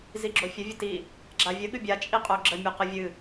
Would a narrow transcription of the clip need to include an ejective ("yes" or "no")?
yes